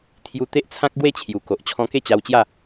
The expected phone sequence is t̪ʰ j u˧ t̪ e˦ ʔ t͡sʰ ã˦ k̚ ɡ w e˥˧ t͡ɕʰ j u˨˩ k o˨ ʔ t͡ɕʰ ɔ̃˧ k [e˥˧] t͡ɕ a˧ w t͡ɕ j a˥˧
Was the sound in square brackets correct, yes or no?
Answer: yes